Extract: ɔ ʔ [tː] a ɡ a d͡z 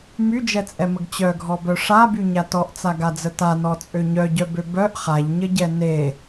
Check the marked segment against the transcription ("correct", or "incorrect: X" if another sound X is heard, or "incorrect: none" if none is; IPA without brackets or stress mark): incorrect: t͡s